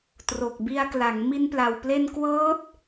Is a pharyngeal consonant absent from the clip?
yes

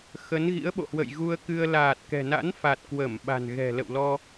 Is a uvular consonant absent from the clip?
yes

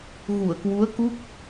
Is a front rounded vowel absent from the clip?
yes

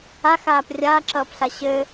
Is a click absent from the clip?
no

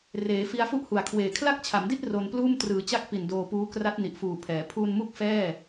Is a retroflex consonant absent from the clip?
yes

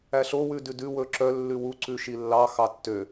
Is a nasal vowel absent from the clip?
yes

